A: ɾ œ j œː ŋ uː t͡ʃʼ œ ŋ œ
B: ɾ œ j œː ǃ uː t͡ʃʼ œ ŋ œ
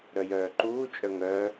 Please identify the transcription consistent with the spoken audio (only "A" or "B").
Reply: B